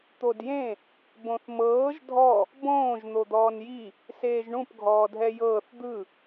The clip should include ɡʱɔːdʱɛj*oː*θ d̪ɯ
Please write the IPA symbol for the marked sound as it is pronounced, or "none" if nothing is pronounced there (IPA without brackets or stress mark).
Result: ɤː